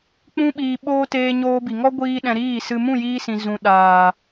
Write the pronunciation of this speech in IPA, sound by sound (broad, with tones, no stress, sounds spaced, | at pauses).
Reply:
k͡p ũ˦ ɓ iː˧ ɓ oː˦ t eː˧ ɲ oː˧ b i˨ ŋ ɔ˦ ɡʷ iː˦ ɗ ɛ̃˧ ɾ iː˦˨ s ɨ˧ m ũ˦˨ j iː˧ s ĩ˨ z ũ˨ ɗ aː˨